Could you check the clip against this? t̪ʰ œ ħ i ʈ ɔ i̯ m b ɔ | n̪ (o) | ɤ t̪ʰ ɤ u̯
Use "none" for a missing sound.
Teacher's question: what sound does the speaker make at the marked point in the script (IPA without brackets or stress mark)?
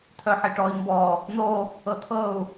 o